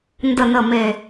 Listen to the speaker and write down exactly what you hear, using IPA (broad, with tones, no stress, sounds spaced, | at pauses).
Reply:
n d ə˨˩ n ə˨˩ m e˨˩